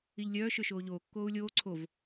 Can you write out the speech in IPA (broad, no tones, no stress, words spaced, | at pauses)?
iʎlʲœː ʃøʃoːʎoː kːoːu̯lʲoː ǀʰov